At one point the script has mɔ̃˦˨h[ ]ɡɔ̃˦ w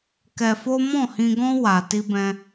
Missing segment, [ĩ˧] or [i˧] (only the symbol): ĩ˧